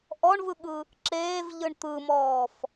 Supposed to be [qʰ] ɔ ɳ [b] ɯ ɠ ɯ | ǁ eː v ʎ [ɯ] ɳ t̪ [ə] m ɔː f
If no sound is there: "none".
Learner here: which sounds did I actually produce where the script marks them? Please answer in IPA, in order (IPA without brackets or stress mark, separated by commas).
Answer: ʔ, v, ɯ, ɯ